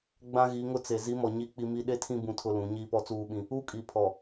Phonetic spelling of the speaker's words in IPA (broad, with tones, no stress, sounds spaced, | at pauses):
ɡ͡b ã˦ ɣ i˨˦ ŋ ʊ˦ t͡s e˨ z i˨˦ m ɔ˨ ɲ i˦˨ k͡p i˦ m i˦ ɗ e˦ tʰ ĩ˦ b ũ˦ tʰ ʊ˦ l ũ˨˦ ɲ iː˦ p ɔ˦ t͡s uː˦ ɓ ĩ˦ | u˦ kʼ i˨ pʰ ɔ˨